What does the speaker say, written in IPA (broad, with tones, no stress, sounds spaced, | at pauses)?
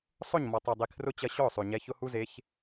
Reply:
sˤ ʊ˦˨ ɲ m ɔ˨ tˤ ɛ˨ dˤ i˨ kʰ r ʊ˦ t͡ɕ ɐ˧ ɕ ɔ˦˨ ʊ̯ sˤ ʉ˨ ɲ ɛ˧ ç ʊ˦ h u˦ z e˨˦ ç